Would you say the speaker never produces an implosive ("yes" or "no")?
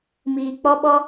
no